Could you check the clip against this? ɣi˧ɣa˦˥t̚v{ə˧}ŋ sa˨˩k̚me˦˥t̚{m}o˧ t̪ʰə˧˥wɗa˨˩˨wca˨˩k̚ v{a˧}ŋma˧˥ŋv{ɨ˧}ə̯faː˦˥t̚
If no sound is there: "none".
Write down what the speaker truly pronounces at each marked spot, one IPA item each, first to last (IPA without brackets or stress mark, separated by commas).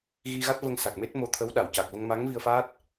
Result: ə˧, m, ə˧, i˧